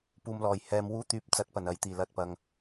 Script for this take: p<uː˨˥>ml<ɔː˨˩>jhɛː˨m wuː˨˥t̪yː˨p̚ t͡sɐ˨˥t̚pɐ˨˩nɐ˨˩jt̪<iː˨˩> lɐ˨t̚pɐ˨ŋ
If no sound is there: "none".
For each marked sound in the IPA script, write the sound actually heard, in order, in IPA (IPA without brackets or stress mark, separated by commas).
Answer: uː˨, ɔː˨˩, iː˨˩